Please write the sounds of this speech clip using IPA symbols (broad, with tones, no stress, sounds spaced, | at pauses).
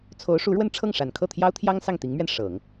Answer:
t͡sʰ o˧˥ ʊ̯ ʂ u˧˥ ɻ w ə˥˧ n ʈ͡ʂʰ ɤ˥˩ ŋ ʂ a˨˩ n kʰ ɤ˥˩ t̪ʰ j ɑ˥ ʊ̯ t̪ʰ j ɑ˥ ŋ s ɑ˥˩ ŋ t̪ i˧˥ ŋ m ɥ ɛ˧ n ʂ ɤ˨˩˦ ŋ